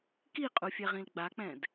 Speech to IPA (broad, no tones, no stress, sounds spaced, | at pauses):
k i qʼ u fʲ ɛ ʁ ĩ l ɡ͡b a k͡p ɛ̃ d